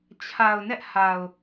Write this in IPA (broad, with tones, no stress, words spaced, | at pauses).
t͡ɕʰa˨ʊ̯nɛ˦ʔha˨ʊ̯